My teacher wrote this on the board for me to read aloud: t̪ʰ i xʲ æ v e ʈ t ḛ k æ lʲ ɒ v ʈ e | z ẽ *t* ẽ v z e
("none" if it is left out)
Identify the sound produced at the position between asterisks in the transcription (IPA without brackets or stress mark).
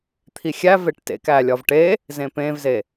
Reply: p